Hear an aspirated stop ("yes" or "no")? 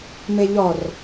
no